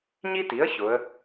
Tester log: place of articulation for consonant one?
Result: palatal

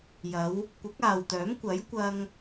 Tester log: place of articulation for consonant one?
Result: palatal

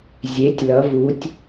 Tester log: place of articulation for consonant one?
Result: alveolar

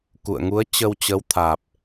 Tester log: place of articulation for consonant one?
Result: velar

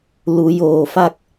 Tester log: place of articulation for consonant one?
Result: alveolar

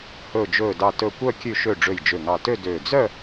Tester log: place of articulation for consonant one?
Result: glottal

